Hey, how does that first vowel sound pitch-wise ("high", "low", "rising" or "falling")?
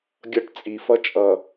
high